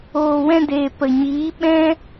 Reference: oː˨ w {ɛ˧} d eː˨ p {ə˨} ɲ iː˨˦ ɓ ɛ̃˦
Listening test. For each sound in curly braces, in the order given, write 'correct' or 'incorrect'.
incorrect, correct

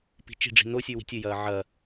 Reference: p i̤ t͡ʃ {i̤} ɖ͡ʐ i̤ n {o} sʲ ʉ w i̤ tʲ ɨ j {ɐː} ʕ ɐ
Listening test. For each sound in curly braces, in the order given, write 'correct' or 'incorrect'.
correct, correct, correct

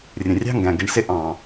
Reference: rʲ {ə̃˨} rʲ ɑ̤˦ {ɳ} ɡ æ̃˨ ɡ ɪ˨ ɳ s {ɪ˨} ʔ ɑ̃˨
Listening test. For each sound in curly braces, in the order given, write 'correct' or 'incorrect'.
correct, incorrect, incorrect

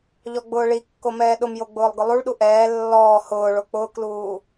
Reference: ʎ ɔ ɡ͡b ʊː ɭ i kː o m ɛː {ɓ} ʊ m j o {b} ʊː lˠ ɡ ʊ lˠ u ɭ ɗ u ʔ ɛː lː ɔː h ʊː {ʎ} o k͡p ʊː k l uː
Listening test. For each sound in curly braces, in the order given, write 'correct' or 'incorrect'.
incorrect, incorrect, incorrect

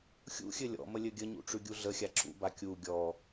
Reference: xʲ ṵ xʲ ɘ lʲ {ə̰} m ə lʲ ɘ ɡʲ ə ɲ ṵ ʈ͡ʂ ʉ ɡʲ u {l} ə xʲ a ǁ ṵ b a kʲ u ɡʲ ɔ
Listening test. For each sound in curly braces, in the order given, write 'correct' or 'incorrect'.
incorrect, incorrect

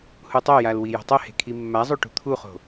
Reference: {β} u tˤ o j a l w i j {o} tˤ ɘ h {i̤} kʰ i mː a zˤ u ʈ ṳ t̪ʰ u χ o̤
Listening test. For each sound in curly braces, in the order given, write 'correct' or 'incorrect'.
incorrect, incorrect, incorrect

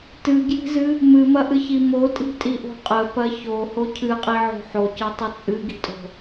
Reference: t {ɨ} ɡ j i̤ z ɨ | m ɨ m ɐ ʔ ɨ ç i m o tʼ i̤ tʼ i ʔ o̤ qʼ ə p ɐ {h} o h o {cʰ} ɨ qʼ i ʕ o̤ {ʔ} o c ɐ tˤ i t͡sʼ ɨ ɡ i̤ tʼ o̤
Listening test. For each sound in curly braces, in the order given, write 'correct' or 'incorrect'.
correct, incorrect, correct, incorrect

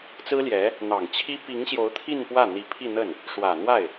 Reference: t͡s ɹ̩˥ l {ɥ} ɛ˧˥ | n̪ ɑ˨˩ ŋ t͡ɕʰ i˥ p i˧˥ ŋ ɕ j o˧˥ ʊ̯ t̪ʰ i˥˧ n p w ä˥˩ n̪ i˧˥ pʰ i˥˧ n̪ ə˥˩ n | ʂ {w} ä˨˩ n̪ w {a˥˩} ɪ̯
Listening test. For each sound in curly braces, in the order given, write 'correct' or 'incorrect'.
incorrect, correct, correct

